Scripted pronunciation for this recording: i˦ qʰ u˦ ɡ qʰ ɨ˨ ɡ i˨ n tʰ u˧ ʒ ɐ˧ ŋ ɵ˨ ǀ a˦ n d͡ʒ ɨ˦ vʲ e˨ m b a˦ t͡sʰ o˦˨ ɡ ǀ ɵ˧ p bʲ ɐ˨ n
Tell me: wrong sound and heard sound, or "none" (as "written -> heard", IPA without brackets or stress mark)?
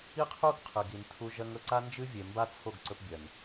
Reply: none